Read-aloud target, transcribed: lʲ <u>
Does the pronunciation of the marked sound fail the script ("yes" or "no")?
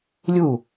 no